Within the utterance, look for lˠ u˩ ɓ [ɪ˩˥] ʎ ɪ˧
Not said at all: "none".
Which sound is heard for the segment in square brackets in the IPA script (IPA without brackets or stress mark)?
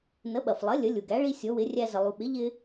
ɪ˩˥